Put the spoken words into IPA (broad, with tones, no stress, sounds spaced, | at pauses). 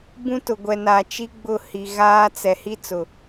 b ũ˦ t ʊ˨ ɡʷ ɛ˨ n a˨ t͡ʃ i˦ ɡ͡b ʊ˦˨ h i˨ ɣ aː˦ t͡s ɛ˨ h i˦ t͡s ʊ˨